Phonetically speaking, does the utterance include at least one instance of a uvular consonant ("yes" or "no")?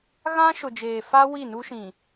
no